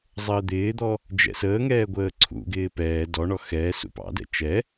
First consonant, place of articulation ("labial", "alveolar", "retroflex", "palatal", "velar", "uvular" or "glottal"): alveolar